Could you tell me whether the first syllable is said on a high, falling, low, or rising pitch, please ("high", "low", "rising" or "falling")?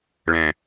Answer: low